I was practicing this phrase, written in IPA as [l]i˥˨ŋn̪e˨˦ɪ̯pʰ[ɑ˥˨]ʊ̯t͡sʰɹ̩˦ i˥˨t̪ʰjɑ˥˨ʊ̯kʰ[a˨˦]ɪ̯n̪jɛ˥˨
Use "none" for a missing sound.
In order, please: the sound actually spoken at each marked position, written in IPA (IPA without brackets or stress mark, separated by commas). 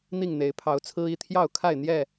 n̪, ɑ˨˦, a˥˨